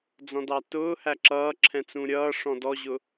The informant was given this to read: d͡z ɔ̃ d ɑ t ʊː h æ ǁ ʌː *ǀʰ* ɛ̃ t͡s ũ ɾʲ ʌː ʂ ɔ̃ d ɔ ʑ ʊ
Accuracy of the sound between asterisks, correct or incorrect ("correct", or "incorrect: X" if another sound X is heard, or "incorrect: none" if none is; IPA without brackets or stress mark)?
incorrect: ǁʰ